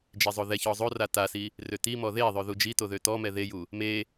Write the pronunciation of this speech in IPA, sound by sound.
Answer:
d͡ʒ e zˤ o ð ɛ ç ɔ zˤ o r a t a s i | r ø t i m ɔ ð e ðˤ ø ð u d͡ʒ i t o ð ø t ɔ m ɛ ð e j u | m e

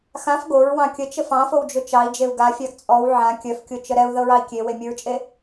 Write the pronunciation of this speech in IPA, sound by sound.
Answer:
x ã f ɡ o ɹ w ɑ̃ kʲ ə t͡ʃ ə f ɑ̃ f o w d͡ʒ ʊ t͡ʃ ɑ i̯ d͡ʒ e u̯ ɡ a fʲ ɑ ɡ t͡sʼ ɔ w ʕ ã kʲ œ f kʲ o t͡ʃ ə ɾ ɛ u̯ ð ɤ ɹ ɑ i̯ kʲ e w e mʲ ʊ ɹ t͡ʃʼ e

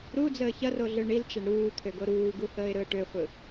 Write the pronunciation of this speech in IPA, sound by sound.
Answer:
ɾ u d͡z əː ç ɐ r o ɮ ɯ ɳ i l t͡ʃ ɐ ɳ ɾ uː t̪ʰ ø ɡ o ɾ uː ɡ u h əː ɪ̯ ɾ ɯ ə̯ ʈ ø χʷ ɯ

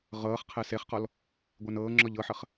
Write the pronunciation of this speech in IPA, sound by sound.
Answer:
ʁ ɤː χ qʰ ɛ s e χ q ɔ l | ɡʷ ɛ n ɤː ŋ͡ǁ ɔ ʎ ɤ ħ ə χ

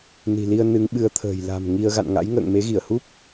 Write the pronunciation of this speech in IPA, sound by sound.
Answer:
n i̤˨˩ l i˧ ə̯ n ɨ˨˦ ŋ ɓ ɨ˨˦ ə̯ t̪ʰ ə̤ː˨˩ j l a̤˨˩ m ŋ i˧ ə̯ ɣ a̰˧˨ n ŋ a̰˧˥ j ŋ ə̰ː˧˨ ŋ m e˨˦ ɣ i˧˩ ə̯ h u˦˥ p̚

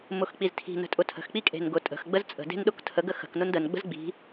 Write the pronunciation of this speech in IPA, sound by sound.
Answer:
m ʊ x k͡p i z tʰ i̤ n ə̤ tʼ ʊ tʰ ə̤ x k͡p i kʼ e̤ n ɡ ʊ tʼ ə̤ x ɡ͡b ə z t͡sʼ ə̤ d e̤ n ɗ ʊ k tʰ ə ɡ ə x ə̤ k n ʊ n d ə n ɡ͡b ə̤ z ɡ͡b i̤

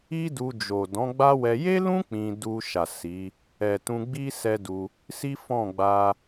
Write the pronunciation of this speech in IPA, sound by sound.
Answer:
i˦ d u˧ d͡ʒ o˨ d ɔ̃˨˦ ɡ͡b a˦ w ɛ˧ j e˦ l ũ˦ k͡p ĩ˧ d u˧ ʃ a˨ s i˨˦ | ɛ˨ t ũ˧ ɡ͡b i˦ s ɛ˦ d u˧ | s i˦ f ɔ̃˦˨ ɡ͡b a˧

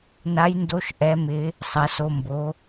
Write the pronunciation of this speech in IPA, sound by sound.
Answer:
n a˧˥ j n d o˧˥ ʃ ʔ ɛ˧˥ m ɪ˧˥ | sˤ ɐ˩˥ s o˧ m b o˩˥

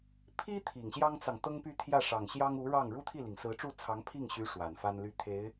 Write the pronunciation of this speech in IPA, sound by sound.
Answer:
pʰ i˥ t̪ʰ i˨˩ ŋ ɕ j ɑ˥ ŋ t͡s ɑ˨ ŋ t̪ ɤ˥ ŋ p y˥˧ t̪ʰ j ä˥˩ ʂ ɑ˨˩ ŋ ɕ j ɑ˥ ŋ u˧˥ ɻ ɑ˥˩ ŋ ɻ u˥ t̪ʰ i˥˩ l i˩ ŋ s ɹ̩˧˥ ʈ͡ʂ u˥˩ t͡sʰ ɑ˧˥ ŋ pʰ i˥˩ ŋ ɕ y˧˥ ʂ w a˨˩ n f a˥ n l y˥ t̪ʰ e˧˥ ɪ̯

